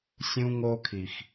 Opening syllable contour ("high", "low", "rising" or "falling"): high